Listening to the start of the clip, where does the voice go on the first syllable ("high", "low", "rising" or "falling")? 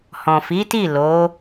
low